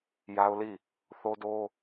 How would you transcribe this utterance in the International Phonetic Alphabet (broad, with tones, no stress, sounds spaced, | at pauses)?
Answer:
j a˦ ʊ̯ l i˦˨ | θ o˦ d o˦